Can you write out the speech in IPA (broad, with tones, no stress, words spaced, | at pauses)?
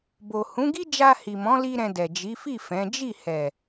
bo˨hũ˨˦ɡi˦d͡ʒa˧ hi˨mɔ̃˨˦li˧ ɾɛ̃˧dɛ˨d͡ʒi˨˦ fi˦˨ fɛ̃˨˦ d͡ʒi˦˨hɛ˨